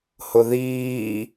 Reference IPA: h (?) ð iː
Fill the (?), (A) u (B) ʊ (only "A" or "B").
B